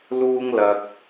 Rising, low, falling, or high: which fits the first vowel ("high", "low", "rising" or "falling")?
high